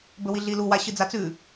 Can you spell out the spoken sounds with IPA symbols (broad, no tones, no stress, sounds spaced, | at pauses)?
b ɵ w i ɮ i l u w a ɕ ɨ d͡z a t͡s ʉ